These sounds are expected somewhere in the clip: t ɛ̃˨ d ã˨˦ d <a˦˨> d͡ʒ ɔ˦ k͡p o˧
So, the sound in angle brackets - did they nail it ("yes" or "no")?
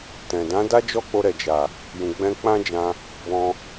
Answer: no